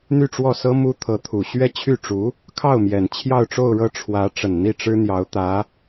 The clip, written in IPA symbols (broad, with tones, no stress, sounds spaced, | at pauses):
n̪ y˥˧ ʈ͡ʂ w ɔ˥˩ s ɤ˥ m u˥ t̪ʰ ɤ˧˥ t̪ʰ u˨˩ ɕ ɥ ɛ˥˧ t͡ɕʰ y˥˩ ʈ͡ʂ u˧˥ | kʰ ɑ˥˩ ʊ̯ m j ɛ˨˩ n t͡ɕʰ j ɑ˥˧ ʊ̯ ʈ͡ʂ o˥˧ ʊ̯ ɻ ɤ˥˩ ʈ͡ʂʰ w ä˧˥ ʈ͡ʂ ə˨˩ n n̪ i˥˩ ʈ͡ʂ ɻ̩˥ n̪ j ɑ˧˥ ʊ̯ t̪ ä˧˥